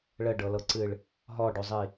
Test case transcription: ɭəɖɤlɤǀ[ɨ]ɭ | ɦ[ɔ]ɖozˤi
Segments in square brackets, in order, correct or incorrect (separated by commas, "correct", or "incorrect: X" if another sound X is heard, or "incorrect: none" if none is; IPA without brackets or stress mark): correct, correct